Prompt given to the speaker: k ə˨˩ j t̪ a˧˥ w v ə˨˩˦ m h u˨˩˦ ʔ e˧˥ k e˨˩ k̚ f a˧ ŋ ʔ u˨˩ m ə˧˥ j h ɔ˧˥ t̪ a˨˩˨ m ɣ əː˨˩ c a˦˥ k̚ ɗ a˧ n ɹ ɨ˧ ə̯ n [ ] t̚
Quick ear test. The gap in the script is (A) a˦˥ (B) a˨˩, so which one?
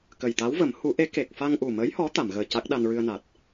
B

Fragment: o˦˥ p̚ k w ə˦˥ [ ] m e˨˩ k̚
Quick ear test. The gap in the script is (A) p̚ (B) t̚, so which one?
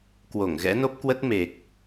B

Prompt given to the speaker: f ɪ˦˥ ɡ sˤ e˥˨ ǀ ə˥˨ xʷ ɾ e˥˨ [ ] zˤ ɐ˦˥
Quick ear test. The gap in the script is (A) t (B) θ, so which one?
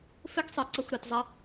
A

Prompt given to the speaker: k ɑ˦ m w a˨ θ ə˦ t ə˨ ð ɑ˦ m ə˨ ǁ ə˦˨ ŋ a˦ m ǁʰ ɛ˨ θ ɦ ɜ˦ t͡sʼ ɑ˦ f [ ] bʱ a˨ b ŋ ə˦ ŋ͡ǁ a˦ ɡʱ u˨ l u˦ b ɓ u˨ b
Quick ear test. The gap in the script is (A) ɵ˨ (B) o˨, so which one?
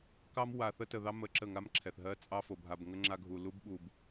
B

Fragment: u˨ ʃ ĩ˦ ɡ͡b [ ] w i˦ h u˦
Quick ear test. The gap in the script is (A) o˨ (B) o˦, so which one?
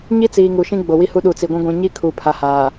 A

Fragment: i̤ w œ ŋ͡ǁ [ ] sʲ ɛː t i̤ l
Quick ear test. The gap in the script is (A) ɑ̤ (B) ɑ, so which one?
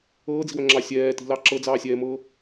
B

